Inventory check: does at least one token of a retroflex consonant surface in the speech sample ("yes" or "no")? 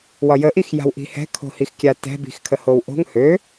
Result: no